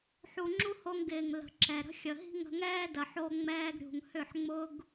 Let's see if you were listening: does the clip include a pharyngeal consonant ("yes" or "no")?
yes